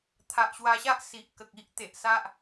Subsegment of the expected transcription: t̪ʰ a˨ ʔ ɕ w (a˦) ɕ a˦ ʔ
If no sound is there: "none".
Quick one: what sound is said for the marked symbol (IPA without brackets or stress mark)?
a˧